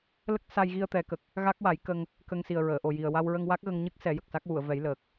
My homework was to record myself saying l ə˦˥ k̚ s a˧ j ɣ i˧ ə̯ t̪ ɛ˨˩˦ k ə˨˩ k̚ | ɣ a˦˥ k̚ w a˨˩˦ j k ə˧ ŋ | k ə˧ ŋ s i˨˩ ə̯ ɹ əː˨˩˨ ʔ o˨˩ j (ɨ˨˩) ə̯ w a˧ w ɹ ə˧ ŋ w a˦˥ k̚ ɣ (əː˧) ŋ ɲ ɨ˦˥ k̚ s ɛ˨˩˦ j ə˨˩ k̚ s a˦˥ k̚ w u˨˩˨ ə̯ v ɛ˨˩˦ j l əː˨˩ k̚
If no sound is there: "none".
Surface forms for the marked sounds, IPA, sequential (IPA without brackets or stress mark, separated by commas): i˨˩, ə˧